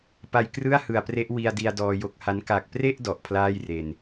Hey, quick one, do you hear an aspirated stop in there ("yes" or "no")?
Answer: yes